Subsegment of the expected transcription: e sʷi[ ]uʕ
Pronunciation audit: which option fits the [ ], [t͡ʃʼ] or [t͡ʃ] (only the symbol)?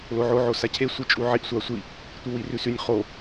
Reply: t͡ʃʼ